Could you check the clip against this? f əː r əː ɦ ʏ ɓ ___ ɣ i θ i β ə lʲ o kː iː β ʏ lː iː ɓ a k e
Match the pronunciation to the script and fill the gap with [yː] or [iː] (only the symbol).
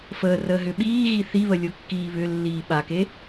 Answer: iː